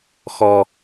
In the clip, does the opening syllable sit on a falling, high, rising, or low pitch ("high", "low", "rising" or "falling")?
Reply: high